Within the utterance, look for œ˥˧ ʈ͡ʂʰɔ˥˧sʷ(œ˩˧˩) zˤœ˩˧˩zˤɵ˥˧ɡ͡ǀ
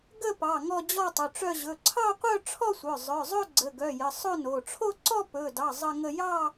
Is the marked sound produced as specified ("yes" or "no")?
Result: yes